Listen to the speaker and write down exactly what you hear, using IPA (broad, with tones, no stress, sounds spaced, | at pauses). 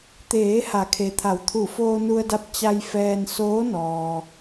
t̪ eː˩˧ h a˩˧ kʰ e˩ t̪ʰ a˩˧ w t̪ʰ u˧˩ f oː˧ n u˧ ə̯ d a˧ p̚ t͡ɕ a˧ j f ɛː˧ n s oː˧˥ n ɔː˩